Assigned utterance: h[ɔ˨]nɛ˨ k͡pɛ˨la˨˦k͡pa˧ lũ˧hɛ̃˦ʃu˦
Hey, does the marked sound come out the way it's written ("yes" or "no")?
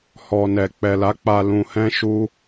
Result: yes